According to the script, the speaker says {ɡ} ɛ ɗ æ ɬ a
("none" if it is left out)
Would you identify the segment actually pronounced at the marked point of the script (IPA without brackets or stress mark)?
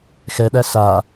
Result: x